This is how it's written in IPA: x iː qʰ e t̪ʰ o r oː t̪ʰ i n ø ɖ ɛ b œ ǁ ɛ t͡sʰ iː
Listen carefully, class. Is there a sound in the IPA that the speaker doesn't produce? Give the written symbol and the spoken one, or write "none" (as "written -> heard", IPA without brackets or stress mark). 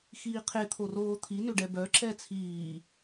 none